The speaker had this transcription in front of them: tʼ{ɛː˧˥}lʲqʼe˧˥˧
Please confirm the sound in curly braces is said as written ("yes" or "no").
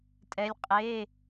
no